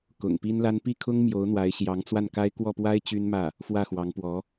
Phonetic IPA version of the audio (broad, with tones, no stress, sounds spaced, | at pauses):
k ʊ̰˨˩ ŋ p i˥ n l a˥ n p i˥˩ kʰ ʊ˥ ŋ m j o˧˥ ʊ̯ n̪ w a˧˥ ɪ̯ ɕ j ɑ˧˥ ŋ t͡s w a˥˩ n k a˥ ɪ̯ k w ɔ˥˩ p w a˥ ɪ̯ t͡ɕ y˥ n m ä˥˩ | f w ä˥˩ x w ɑ˧˥ ŋ p w ɔ˧˥